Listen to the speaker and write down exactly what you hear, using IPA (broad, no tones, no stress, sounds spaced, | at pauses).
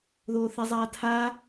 ð oː θ ɛ zˤ aː tʰ a